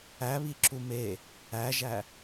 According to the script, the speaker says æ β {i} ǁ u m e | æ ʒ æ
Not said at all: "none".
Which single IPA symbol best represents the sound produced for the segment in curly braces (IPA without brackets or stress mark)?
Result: i